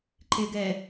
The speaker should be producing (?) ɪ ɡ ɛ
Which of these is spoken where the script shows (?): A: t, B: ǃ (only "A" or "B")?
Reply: B